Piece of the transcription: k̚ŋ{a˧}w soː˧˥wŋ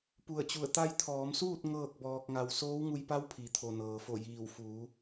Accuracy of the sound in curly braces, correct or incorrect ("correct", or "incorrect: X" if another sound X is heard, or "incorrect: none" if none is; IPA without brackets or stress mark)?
correct